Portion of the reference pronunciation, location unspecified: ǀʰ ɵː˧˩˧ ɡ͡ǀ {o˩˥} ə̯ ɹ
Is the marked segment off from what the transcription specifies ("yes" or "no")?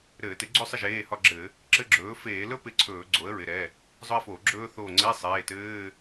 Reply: no